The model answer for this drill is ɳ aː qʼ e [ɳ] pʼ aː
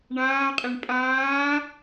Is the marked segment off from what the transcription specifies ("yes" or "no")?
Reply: no